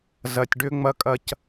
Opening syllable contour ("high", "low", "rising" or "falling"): low